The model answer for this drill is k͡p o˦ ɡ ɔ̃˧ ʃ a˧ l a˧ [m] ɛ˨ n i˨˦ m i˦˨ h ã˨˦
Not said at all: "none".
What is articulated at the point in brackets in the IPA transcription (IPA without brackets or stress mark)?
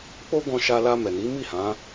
m